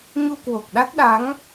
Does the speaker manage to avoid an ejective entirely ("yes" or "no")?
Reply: yes